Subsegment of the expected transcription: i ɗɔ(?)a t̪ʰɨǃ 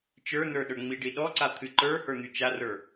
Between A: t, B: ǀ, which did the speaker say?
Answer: B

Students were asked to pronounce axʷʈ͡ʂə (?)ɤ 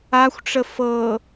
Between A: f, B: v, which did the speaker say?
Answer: A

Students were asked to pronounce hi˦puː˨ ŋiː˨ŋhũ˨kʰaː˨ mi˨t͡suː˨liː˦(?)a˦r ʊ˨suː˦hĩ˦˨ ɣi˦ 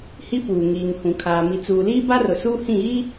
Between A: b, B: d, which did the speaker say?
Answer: A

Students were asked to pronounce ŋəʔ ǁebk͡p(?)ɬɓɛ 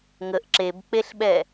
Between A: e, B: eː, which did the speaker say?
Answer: A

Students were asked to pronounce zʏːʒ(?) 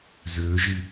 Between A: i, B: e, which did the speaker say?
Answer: A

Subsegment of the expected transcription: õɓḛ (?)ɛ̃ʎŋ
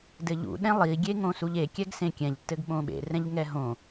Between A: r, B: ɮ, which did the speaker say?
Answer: A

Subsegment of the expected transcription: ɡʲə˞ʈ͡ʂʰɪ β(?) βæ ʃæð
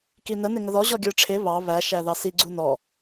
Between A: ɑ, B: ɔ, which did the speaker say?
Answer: A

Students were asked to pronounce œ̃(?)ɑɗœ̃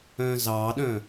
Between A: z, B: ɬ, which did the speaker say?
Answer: A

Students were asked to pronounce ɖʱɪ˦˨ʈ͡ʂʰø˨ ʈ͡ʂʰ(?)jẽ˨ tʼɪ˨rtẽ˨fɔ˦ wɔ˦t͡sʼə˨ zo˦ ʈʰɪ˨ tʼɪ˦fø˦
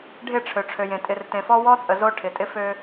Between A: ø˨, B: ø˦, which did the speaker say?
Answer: A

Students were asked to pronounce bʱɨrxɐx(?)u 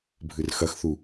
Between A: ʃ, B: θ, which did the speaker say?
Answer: B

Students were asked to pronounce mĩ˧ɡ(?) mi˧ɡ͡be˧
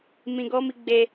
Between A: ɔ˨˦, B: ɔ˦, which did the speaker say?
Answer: B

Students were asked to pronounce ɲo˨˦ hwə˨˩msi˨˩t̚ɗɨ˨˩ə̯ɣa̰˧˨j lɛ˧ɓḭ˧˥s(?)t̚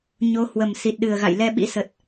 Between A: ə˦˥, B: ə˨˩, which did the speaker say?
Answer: B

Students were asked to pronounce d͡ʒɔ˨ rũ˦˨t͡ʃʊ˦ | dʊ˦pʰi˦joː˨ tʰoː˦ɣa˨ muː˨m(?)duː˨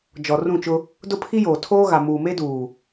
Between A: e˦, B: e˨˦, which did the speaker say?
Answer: A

